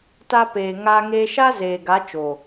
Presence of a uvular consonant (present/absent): absent